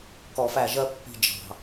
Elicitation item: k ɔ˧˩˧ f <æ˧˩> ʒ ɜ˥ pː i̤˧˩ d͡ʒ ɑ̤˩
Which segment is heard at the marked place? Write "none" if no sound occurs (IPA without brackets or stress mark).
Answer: æ˧˩